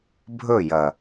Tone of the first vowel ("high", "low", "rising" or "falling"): falling